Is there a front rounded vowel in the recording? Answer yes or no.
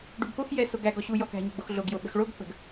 no